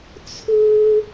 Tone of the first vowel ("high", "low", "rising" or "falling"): high